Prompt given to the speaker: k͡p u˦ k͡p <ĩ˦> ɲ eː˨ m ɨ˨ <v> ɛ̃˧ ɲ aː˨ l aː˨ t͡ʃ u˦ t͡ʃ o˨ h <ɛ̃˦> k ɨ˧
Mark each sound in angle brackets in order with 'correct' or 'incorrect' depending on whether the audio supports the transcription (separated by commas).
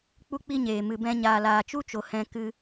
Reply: incorrect, incorrect, incorrect